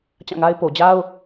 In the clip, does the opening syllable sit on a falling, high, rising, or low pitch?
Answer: falling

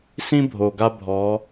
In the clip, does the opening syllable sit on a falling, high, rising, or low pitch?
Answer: high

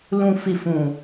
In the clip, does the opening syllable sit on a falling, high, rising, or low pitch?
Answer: low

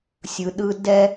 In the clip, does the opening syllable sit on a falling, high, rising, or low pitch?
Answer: low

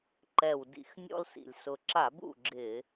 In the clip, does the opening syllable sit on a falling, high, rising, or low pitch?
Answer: low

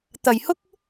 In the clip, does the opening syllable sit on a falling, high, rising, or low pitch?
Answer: low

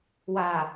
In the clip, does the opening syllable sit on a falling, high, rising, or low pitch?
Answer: low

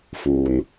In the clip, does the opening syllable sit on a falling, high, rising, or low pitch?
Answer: low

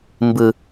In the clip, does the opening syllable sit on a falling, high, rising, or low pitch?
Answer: high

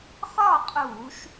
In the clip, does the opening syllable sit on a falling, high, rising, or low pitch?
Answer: falling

